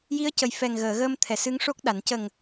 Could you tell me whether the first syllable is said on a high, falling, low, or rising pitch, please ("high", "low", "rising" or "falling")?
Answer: rising